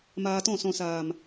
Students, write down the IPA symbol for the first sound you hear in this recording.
m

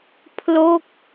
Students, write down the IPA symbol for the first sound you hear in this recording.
pʰ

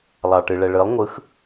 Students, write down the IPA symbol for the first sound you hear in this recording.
lˠ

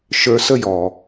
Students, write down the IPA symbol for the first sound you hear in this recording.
ʃ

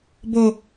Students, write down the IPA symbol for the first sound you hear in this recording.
b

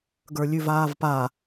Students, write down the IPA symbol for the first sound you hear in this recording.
ɡ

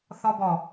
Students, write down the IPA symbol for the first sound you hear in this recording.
θ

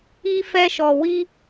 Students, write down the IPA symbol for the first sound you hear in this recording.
i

